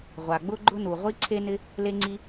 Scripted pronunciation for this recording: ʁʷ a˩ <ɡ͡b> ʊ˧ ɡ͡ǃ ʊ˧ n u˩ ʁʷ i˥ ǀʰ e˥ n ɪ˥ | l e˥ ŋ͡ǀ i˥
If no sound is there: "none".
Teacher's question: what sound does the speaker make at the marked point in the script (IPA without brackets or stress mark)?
ɡ͡b